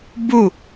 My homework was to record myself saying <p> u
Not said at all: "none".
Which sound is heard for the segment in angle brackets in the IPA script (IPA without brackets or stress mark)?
b